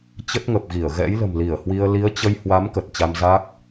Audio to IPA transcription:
t͡ɕə˦˥t̚ŋə˨˩p̚ɣi˧˩ə̯ ɣɛ̰˧˥jlə̤˨˩mli˧˩ə̯hwi˧ə̯ li˨˦ə̯t͡ɕə˧jhwa˨˦m kə˨˩t̚ t͡ɕa˧mza˦˥k̚

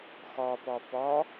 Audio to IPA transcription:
xɔpɔ pɔ

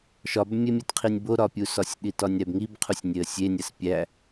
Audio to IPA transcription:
ʃɒbmʲemʲetqʰinʲ boɾɒpʲusɒsʲ ɗitɒnʲɾæbŋib qʰusʲnʲeə̯sʲenʲæs pʲæ

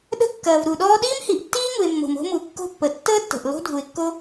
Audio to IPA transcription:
ɗə̤˥kːɐː˩v ɾu˩ɗɔː˥ ɗiː˥mhi˩ʔtːiː˥ŋu˩ɪ̯ mːo̤˩mo̤˥mu˩ kːo̤˥pːə˩ tːəː˥tːə̤˩ʔ lo̤˥dʱu˩ɪ̯kːo˥

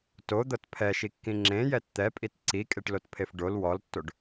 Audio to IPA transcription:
tod̪ɤt pʰɛʃikːĩ ŋ͡ǁẽjɛt t̪ɛpʼit ǀikʼeʈlotpʰef ɖol wɔltːoɖ

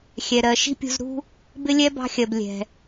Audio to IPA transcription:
xʲɛ˩ɾɜ˩ ʃi̤˥pʲṳ˧z ɾṳ˥ | bɪ˥lʲɛ˥ bɑ̤˧xʲɜ˩b lʲɛ̤˩

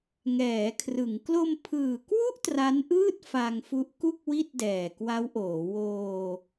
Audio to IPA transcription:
ŋɛː˩˦kʰrɯ˩˦ŋ klo˧mpʰɯː˨˩kwu˥˩ʔ tra˦˥nʔɯː˥˩t̚ fa˧ŋfu˦˥ʔku˥˩k̚ wi˥˩t̚dɛː˨˩kwa˦˥wʔoː˩˦ woː˧

